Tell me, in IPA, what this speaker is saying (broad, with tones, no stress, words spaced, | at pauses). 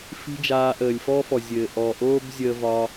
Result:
fi̤˦d͡ʒaː˧ ʔəː˨lʲfɔ˦fɔ˨ zʲɘː˨ ʔɔ˨ʔoː˦bzʲəː˧vɒ˧